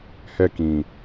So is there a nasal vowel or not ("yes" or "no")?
yes